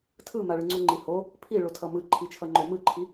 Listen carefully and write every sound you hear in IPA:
tʰ ɯ m a ɭ ɯ ŋ͡ǀ u ŋ͡ǃ i h o | pʰ i ɭ o tʰ ʌ m ɯ ǃʰ i t͡ʃʰ ʌ ŋ͡ǃ o m ɯ ǃʰ i

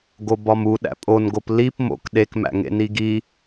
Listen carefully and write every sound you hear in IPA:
ɡ o b ɒ m u ɗ æ̰ pʼ o n ɡ o p l i p m o̰ k ɗ e k m æ̰ ŋ ḛ n i ɡ i

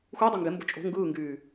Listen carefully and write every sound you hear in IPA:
xʷ i dˤ o ŋ ɡ e m b o̤ t͡ʃʼ o̤ ŋ ɡ ɯː ŋ ɡ yː

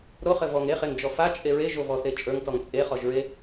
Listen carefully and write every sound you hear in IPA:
ɾ o χ ɘ v ɔ ŋ e χ e ŋ d͡ʒ ɔ f a t͡ʃʼ e ɹ e ʒ o v ɔ θ e t͡ʃʼ ə˞ ŋ t ɔ ŋ t͡sʼ e χ ɔ ʒ ɹ e

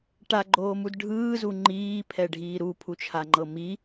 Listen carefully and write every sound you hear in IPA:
ʈ a ɡ͡ǃ oː m u d ɖʱ ɯː z u ŋ͡ǃ iː pʰ ɛ ɖʱ iː ɾ u pʰ u t͡ʃʰ a ŋ͡ǃ ɤ m i

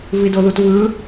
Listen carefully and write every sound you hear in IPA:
v i d o ð u t v ɯ

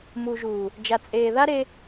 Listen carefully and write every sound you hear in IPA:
m u˨ ʒ uː˨ | d͡ʒ a˨ t͡sʼ eː˨ ð a˦ ɾ e˦

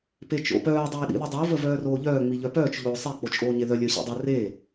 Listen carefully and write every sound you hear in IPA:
p e t͡ʃ o̰ p œː dˤ eː ɗ ḭ ð ə dˤ o v ə v œː r oː ʎ œː ŋ͡m i ʎ œ p œː t͡ʃ ʎ oː sˤ e k͡p o t͡ʃʼ oː ɲ e ð œ lʲ œ ɕ ḭ dˤ ə r eː

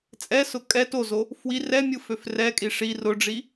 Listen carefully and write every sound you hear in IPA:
t͡sʼ ɛ s ʊ kʼ ɛ t o z o | f w i r ɛ mʲ ɯ f ø f r ɛ kʼ i ʂ i r ʊ ɖ͡ʐ i

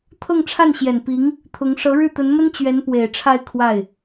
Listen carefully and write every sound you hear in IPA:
t̪ʰ ɤ˥˧ ŋ ʈ͡ʂʰ a˥˩ n ɕ j ɛ˨˩ n p i˧˥ ŋ | t̪ʰ ʊ˧˥ ŋ ʂ ɤ˧˥ ɻ ɻ̩˥˩ t̪ ə˧˥ n m ə˥ n t͡ɕ ɥ ɛ˧˥ n p w e˨˩ ɪ̯ ʈ͡ʂʰ a˥˧ ɪ̯ kʰ w a˥˩ ɪ̯

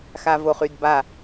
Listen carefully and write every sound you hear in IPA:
x a v o χ y d b a

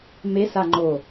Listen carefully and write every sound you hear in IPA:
m e s a ŋ͡ǃ o

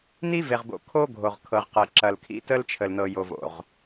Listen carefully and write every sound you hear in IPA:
n i˦ v e˨ ʁ b o̰˨ kʰ o˦ ɡʱ o˨ ʁ kʰ ɤ˨ ʁ q ɤ˨ ǁ ɐ˨ l kʰ ḭ˦ t ə˦ l t͡ʃʰ ə˨ l n ɤ˨ j o˨ v o̰˨ ʁ

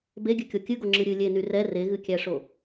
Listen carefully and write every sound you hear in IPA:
b e ɡʲ ɨ kʲ o kʲ ɨ ɡ o ŋ͡ǁ ɨ ɾʲ ɨ lʲ e n y r ɛ r e ɣ ɨ kʲ æ ʂ o

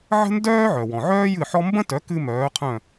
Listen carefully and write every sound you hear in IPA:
ʕ ə̤˥ n d œː˥ ʕ œ˩ w ɔ̃˩ ʕ œː˥ j ɨ˥˩ ħ ɔ˥ m b ə̃˥ t œ˩˥ k ɨ˧ m œː˩˥ qʰ œ̃˥˩

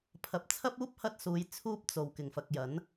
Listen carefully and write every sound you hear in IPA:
pʰ ɐ˨˥ p̚ t͡sʰ ɐ˥ p̚ uː˥ p̚ h ɐ˥ t̚ s uː˨˧ j t͡sʰ uː˥ p̚ t͡s o˨˩ w k ɪ˨˩ ŋ f ɐ˨ k̚ j ɐ˨˥ n

